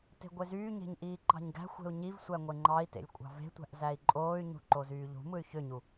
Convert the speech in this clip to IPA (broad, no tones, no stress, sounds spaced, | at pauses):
t e̤ ɡʷ e z yː ɲ e̤ ɲ ʔ iː ǃ ɑ̤ ɲ ɡ æ̤ xʷ e̤ u̯ ɲ i v sʷ æ ŋʷ e ŋ͡ǃ ɑ i̯ t ḛ lʲ kʷʼ ɑ̤ v e̤ tʷ æ̤ ʔ z æ i̯ ǃʼ oː y̯ ɲ ṳ ǃ o z yː ʎ ṳ m ɯ y̯ ç ø ɲ u